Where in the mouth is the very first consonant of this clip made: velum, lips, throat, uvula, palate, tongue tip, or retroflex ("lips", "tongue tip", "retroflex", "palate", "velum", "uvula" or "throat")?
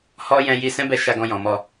throat